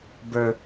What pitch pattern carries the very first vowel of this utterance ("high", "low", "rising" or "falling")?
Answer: high